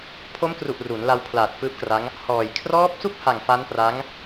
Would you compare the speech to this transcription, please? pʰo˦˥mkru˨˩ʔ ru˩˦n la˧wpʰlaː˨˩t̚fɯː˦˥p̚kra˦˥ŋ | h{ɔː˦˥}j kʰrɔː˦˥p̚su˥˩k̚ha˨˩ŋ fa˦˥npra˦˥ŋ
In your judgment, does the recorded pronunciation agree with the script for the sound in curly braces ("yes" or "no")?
no